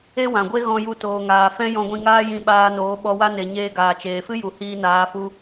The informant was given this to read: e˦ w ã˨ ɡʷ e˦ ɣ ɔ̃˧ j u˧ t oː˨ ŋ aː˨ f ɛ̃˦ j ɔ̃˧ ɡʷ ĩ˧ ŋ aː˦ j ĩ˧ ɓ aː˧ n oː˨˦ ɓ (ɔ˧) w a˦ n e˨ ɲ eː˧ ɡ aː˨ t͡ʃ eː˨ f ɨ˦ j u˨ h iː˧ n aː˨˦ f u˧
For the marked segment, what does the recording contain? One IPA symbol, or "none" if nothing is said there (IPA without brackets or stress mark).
ɔ˧